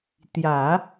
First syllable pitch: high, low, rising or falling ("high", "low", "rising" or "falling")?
low